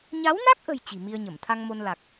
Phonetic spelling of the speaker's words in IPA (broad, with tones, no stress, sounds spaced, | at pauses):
ɲ a˨˦ w n a˦˥ k̚ ʔ ə̤˨˩ j t͡ɕ i̤˨˩ m i˧ ə̯ ɲ ə˧˩ m t̪ʰ a˧ ŋ m o˧ n l a˨˩ k̚